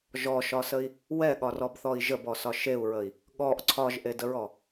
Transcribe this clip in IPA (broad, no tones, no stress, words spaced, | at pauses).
ʒɔʃɒsəi̯ | wɛɠɒrɔbθɔi̯ ʒəbɔsɒ ʃeu̯ɹəi̯ | ɠɔʔ ǀʰɒʒʔedəɹɔ